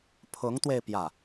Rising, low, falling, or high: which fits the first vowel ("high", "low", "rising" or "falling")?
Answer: rising